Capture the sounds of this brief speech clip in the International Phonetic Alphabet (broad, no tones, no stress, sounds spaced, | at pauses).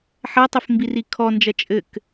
ħ ɐ tˤ ɘ f m b i r i kʰ ɔ n d͡ʒ ɐ t͡ʃʼ ɘ k